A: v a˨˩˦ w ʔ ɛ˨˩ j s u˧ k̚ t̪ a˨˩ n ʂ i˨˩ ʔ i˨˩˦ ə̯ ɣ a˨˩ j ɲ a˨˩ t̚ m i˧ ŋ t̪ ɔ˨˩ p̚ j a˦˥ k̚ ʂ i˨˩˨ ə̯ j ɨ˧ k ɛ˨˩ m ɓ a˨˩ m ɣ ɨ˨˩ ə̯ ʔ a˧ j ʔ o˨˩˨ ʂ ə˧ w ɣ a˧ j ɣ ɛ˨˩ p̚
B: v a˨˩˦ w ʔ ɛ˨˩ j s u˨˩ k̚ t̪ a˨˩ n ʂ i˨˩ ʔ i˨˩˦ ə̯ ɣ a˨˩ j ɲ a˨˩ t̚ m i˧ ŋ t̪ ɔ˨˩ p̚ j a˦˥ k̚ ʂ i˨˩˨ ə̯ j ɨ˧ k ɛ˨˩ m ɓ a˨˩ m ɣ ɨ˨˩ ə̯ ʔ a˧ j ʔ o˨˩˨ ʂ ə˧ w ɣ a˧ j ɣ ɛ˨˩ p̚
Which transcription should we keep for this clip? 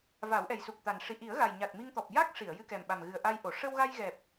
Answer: B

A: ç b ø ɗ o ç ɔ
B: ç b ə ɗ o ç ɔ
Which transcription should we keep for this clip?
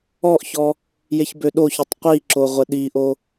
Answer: A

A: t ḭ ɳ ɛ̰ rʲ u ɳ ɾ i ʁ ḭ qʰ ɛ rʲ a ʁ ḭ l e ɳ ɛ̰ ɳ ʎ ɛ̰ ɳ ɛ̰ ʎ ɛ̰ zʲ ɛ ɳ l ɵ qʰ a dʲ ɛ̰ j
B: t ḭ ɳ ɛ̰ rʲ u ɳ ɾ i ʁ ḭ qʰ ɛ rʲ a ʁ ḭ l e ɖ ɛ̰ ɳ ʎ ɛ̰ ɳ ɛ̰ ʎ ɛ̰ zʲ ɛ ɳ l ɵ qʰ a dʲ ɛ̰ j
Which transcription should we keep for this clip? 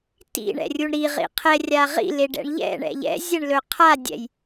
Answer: B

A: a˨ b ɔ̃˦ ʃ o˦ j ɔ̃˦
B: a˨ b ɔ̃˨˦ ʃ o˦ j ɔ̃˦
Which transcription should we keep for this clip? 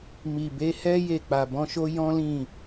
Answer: B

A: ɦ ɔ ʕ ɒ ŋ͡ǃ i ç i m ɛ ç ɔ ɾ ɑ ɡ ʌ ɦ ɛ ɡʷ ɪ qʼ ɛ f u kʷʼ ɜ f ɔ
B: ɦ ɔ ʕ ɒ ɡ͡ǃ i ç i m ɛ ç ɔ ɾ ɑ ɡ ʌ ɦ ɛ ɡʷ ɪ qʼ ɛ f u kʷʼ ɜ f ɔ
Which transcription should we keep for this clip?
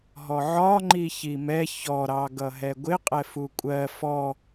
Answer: A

